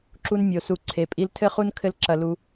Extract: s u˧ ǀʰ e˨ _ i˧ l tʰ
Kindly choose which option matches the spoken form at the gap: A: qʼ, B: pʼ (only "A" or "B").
B